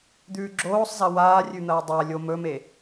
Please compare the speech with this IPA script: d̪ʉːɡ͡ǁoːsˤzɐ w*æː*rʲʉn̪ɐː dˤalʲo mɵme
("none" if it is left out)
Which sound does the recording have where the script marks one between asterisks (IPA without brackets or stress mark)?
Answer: aː